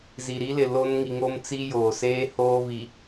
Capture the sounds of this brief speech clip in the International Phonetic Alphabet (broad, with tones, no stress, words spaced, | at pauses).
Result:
zi˨ɾi˦lɪ˨ lo˦n ŋi˨ŋo˦mt͡si˦ joː˨seː˦ hoː˦vi˨